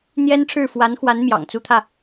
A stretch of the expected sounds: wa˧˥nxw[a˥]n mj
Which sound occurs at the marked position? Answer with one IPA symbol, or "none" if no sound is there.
a˧˥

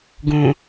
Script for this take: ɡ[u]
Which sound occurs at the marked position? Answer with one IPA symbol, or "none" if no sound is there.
ũ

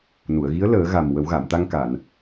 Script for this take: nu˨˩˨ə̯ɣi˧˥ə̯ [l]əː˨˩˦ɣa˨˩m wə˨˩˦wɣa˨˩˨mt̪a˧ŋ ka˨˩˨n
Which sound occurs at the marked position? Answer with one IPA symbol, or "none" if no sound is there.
l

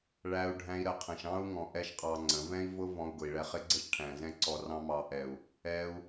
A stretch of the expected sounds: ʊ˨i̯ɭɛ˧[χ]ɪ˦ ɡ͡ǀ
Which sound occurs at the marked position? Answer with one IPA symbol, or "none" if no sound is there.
χ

